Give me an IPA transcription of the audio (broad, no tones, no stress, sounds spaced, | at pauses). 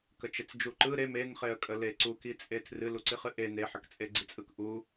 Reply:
k ə t͡ʃ e t͡s d͡ʒ u ǃ ɯ ɾ e m e n χ e ə̯ kʼ ə l e ǀ u k i t͡sʼ e tʰ r ɨ l u ǀ i χ ɨ ʔ e n e ħ ə k t͡sʼ e ɡ͡ǀ i t͡sʼ ɯ k ʔ u